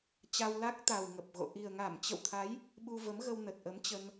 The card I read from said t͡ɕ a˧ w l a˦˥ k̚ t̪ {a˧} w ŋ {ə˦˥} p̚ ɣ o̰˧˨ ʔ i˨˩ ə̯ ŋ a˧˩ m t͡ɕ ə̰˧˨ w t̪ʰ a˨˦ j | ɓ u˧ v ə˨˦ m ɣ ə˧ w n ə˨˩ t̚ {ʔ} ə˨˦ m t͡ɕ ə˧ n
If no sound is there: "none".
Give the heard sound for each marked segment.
a˨˩, ə˨˩, ʔ

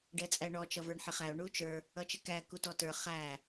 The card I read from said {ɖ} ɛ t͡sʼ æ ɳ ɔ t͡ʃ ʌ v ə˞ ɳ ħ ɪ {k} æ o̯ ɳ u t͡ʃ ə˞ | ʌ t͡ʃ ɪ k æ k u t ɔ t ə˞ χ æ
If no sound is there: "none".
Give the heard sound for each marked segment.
ɖ, χ

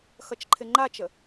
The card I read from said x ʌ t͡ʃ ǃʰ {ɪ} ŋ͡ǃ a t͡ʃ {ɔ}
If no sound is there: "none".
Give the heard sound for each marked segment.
ɪ, ə

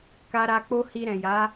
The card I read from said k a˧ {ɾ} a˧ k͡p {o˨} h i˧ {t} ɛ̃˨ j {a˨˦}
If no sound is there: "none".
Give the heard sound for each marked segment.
ɾ, o˦, ɾ, a˨˦

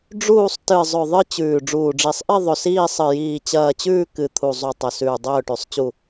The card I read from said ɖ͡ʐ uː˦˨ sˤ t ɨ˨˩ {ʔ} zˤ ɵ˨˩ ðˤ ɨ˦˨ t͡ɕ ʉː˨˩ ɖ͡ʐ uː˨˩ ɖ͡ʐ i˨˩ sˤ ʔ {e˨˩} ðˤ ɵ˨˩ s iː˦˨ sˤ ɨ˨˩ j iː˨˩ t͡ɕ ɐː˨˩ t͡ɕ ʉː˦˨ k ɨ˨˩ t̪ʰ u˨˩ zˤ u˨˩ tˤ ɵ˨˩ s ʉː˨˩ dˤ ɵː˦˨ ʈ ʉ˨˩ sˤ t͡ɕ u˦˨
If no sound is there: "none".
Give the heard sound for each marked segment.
none, e˦˨

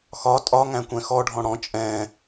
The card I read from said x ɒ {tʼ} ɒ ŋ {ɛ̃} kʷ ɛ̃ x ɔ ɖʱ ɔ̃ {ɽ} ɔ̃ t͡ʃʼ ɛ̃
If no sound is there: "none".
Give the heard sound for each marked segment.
tʼ, æ̃, ɽ

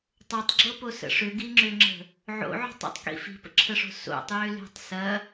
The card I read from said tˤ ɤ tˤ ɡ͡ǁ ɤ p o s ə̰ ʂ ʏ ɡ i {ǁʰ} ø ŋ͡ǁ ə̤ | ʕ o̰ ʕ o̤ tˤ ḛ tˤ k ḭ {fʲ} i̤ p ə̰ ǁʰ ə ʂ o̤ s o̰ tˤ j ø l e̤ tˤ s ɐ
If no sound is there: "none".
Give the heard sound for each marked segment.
ŋ͡ǁ, f

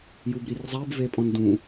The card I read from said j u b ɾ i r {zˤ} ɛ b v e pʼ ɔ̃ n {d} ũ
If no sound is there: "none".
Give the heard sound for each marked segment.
zˤ, d

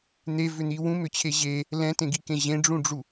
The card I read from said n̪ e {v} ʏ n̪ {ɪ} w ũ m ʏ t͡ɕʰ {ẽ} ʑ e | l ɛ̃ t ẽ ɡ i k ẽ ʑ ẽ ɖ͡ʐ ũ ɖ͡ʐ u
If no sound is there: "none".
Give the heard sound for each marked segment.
v, i, e

